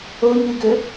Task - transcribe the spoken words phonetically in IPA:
o ɲ y ɡ ø

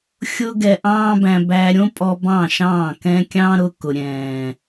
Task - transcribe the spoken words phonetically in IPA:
xʲ ʊ˦ ɡ ɛ˧ ʔ ɑ̃ː˦ b æ̃˧ b æ˧ ɾʲ õ˦ pʼ ɔ˧ b ɑ̃˦˨ ʃ ɑ̃ː˦˨ k ɛ̃˦ kʲ ɑ̃˦ ɾ ʊ˧ k ʊ˨ ɾʲ ɛ̃ː˨

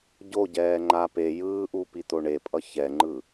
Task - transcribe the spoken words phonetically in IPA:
ɟ o ɟ ɛː ŋ͡ǃ a p e j ɯː ʔ u p i t̪ o ɳ e pʼ ʌ ç ɛ ŋ͡ǃ ɯ

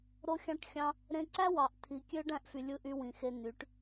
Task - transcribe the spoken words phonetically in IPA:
ɾ o˧ xʲ ɑ̃˧ ʈ xʲ ɑ̃˧ | ɾ ẽ˧ ǀ æ˦ w ɑ˨ ʔ t̪ʰ i˨ kʲ ø˦ ɖ æ̃˦ ʔ f y˨ lʲ ɯ˧ ʔ y˧ w ĩ˨ x e˧ n y˨˦ ʈ

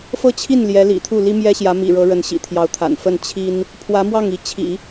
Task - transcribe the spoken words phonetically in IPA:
f ɤ˥˧ t͡ɕʰ i˥˩ n l j ɛ˧˥ l ḭ˨˩ t̪ʰ u˥˩ l i˥ m j ɛ˥ ɕ j ä˧˥ m ḭ˨˩ ɻ ɤ˧˥ ɻ ə˧˥ n ɕ ḭ˨˩ t̪ʰ j ɑ˧˥ ʊ̯ t̪ʰ a̰˨˩ n f ə˥˩ n t͡ɕʰ i˥ n | pʰ w ä˧˥ m w ɑ˥˩ ŋ i˧˥ t͡ɕʰ ḭ˨˩˦

